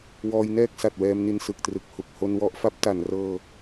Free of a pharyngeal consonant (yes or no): yes